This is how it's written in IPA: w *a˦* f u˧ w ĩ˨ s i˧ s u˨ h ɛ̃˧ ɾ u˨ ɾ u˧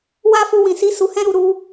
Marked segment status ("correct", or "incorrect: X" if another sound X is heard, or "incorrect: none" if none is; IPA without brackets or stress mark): correct